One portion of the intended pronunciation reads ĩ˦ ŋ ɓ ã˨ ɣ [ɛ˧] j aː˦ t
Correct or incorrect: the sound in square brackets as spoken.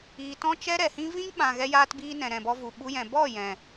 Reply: correct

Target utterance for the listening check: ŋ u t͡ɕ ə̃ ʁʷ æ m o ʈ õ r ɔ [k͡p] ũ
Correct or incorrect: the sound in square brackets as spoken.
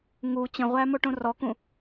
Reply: incorrect: k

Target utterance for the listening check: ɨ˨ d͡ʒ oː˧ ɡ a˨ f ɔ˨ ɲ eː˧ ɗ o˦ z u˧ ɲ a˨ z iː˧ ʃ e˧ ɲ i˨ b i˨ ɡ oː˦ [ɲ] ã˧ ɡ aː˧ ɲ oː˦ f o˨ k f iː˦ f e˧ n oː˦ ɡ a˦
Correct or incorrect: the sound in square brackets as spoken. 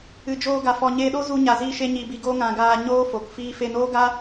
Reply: incorrect: ŋ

